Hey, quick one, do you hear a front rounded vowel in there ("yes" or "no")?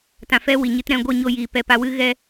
no